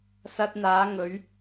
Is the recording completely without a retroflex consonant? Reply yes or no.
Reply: yes